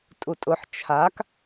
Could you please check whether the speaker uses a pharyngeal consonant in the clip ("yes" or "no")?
yes